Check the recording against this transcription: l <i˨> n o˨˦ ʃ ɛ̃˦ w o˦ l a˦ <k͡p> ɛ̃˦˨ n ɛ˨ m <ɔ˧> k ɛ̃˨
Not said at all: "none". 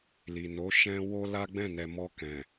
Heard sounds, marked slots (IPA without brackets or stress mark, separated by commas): i˨, ɡ͡b, ɔ˧